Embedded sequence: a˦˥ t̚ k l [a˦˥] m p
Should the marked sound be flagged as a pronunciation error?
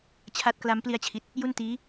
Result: no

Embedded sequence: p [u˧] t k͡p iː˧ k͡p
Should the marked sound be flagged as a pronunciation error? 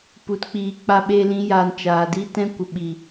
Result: no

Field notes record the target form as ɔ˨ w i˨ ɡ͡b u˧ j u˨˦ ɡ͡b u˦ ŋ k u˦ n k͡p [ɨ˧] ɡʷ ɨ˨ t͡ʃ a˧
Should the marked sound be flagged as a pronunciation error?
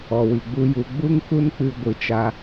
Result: no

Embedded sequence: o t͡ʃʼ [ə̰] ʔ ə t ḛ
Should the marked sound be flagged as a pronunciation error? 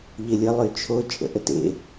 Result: no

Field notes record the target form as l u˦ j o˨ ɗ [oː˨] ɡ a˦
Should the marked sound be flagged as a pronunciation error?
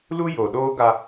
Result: yes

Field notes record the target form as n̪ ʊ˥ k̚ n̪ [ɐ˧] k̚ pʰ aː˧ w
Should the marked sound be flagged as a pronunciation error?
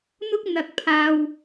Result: no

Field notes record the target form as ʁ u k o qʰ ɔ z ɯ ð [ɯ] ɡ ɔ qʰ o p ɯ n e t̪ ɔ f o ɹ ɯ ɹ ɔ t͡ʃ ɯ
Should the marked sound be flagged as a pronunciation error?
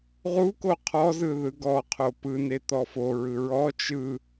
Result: no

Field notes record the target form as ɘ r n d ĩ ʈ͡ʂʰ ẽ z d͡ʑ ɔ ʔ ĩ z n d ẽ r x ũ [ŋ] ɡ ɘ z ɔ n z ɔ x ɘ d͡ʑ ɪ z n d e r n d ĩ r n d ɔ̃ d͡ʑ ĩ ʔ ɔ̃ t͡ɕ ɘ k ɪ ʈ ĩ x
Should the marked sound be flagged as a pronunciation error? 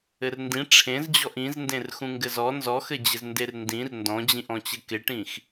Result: no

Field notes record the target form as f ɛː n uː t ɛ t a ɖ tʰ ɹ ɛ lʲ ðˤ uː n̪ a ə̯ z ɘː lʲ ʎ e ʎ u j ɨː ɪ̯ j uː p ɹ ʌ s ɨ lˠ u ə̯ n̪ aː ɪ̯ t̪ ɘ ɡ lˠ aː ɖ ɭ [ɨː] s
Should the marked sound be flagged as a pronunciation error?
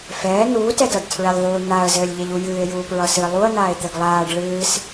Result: no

